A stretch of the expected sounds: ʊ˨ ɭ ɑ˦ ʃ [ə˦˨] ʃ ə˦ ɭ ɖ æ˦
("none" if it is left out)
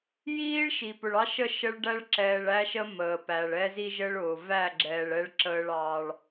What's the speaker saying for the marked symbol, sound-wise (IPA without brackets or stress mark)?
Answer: ə˦˨